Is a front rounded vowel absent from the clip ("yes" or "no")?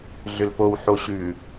no